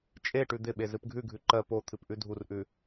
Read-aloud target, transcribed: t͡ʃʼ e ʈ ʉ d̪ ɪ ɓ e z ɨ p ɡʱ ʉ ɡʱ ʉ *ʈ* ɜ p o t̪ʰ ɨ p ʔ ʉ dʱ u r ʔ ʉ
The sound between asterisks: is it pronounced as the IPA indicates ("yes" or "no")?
no